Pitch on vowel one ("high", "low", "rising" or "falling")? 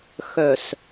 low